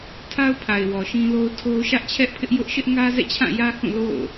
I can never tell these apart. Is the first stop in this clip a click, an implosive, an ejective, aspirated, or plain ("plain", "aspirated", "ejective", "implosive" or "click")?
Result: aspirated